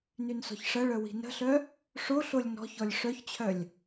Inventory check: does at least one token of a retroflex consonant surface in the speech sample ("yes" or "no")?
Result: yes